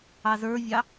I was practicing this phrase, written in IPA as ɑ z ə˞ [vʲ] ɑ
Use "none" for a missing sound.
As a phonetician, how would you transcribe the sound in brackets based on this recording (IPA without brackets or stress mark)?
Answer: vʲ